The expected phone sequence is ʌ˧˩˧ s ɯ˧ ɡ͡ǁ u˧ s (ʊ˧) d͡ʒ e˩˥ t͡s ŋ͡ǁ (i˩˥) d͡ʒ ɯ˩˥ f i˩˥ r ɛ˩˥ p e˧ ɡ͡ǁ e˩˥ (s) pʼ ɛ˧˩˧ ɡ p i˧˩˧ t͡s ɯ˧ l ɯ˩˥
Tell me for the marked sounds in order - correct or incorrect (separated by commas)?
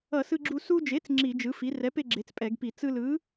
incorrect, incorrect, incorrect